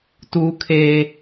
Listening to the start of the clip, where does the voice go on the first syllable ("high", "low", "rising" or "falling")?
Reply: high